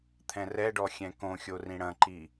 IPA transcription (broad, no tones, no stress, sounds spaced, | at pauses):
t̪ʰ ɛ̃ r ɛ ɖ ɔ xʲ ɛ̃ k õ xʲ o r ĩ ɽ ɐ̃ ǃ i